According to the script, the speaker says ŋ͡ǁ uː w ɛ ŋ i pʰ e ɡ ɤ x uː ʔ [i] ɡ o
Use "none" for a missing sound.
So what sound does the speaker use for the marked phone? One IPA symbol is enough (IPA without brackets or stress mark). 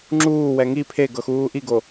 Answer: i